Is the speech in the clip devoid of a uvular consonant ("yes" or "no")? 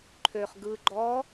no